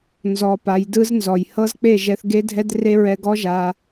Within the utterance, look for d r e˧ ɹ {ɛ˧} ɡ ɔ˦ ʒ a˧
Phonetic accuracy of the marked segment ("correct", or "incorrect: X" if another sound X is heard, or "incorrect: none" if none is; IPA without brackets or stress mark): correct